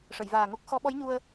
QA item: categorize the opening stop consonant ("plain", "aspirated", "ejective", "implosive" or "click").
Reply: plain